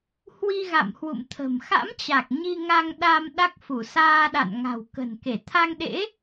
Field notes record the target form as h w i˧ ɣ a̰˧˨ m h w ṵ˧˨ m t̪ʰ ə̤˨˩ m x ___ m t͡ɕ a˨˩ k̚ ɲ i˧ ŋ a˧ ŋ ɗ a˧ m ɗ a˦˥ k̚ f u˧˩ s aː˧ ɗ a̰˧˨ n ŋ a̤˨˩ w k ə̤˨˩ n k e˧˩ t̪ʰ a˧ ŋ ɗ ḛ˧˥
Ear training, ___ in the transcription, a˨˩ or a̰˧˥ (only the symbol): a̰˧˥